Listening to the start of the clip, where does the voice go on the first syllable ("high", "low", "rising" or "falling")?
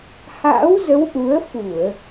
rising